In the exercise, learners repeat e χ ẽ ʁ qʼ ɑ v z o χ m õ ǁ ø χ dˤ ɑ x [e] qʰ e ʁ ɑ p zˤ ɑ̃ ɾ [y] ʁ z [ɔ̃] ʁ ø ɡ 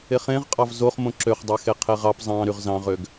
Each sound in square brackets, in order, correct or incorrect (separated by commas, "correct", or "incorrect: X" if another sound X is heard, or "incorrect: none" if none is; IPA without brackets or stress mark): correct, correct, incorrect: ɑ̃